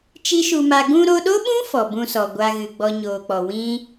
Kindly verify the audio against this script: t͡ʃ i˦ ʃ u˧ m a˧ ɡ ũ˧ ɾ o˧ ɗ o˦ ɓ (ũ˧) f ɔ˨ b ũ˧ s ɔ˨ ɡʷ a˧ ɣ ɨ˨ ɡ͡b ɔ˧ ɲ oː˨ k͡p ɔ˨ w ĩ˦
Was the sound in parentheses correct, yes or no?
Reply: no